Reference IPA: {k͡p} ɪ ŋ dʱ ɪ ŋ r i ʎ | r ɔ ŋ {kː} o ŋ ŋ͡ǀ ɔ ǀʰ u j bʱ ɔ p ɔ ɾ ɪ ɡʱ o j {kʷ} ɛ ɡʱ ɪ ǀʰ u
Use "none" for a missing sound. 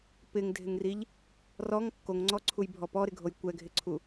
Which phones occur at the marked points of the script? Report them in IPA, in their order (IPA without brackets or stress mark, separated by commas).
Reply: p, kː, kʷ